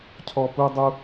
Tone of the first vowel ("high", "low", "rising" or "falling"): high